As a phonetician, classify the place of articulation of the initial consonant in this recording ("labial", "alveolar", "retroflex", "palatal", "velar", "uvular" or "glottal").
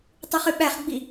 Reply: alveolar